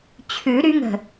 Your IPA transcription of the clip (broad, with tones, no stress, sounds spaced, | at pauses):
t͡ɕʰ ʉ˨˩˦ ɾ y˨˥ ŋ ə̤˧˩